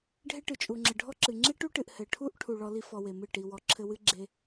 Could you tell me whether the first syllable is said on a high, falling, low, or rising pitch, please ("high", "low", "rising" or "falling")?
high